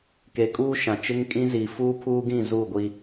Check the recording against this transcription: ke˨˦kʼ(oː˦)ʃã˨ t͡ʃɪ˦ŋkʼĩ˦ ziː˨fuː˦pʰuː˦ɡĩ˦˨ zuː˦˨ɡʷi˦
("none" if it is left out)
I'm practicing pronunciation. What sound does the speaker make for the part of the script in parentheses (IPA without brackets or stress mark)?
uː˦